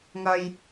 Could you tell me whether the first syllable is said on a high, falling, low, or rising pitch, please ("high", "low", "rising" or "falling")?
low